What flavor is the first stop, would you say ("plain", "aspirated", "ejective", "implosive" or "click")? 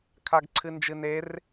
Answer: aspirated